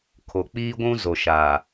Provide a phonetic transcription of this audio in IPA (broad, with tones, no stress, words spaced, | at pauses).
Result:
kʰo˨ k͡piː˦ɡʷũ˦ zo˨ʃaː˨